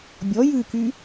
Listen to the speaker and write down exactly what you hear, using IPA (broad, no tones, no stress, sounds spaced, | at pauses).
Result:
bʲ ɔ j ʉ k y